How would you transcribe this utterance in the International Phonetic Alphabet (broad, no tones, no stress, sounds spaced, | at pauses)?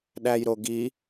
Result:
ɗ æ j ɾ o ɡ i